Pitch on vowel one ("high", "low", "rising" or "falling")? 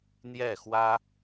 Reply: falling